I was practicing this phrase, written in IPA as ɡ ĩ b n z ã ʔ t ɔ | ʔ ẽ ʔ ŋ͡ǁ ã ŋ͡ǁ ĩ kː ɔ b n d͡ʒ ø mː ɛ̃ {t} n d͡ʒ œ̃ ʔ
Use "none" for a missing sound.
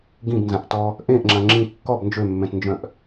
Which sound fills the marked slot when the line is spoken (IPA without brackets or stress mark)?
t